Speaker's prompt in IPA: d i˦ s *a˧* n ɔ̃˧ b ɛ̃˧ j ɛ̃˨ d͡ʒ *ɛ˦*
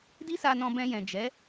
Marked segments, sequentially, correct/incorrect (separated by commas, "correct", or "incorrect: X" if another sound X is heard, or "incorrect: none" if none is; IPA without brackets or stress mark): correct, incorrect: ɛ˨˦